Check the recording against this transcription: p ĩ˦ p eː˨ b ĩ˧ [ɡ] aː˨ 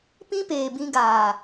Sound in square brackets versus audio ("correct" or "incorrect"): correct